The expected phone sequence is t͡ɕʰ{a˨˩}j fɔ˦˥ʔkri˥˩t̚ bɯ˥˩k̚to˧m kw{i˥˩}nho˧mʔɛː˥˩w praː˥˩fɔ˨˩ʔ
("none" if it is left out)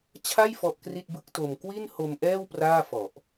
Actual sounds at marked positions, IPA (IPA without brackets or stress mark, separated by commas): a˥˩, i˥˩